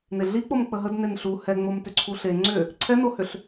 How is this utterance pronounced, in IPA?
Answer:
neɮik͡pom k͡pəɦəd nenɬu hɛŋ͡momtʏǀʰu ɬe ŋ͡ǀʏ | ǀʰɛnohʏɬ

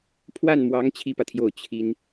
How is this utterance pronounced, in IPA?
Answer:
pʰwa˥˩nmwɑ˧˥ŋ t͡ɕʰi˥˩pä˩t̪ʰjo˥˩ʊ̯ t͡ɕʰi˥n

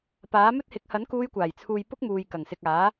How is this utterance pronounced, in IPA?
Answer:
paː˨˥mɵ˥t̚hɪ˨˥k̚ hɐ˨˥nkuː˧jkʷaː˨˩jt͡sʰuː˨j pʊ˥k̚muː˨jkɐ˨˩ŋsɪ˨k̚ aː˨˥

